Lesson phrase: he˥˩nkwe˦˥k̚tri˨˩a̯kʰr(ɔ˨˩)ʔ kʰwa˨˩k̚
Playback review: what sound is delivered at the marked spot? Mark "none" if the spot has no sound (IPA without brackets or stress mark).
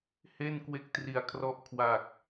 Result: ɔ˦˥